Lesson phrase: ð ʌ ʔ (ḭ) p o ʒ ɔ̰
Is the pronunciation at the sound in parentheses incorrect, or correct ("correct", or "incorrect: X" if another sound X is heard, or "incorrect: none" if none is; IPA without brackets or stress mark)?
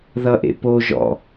incorrect: ḛ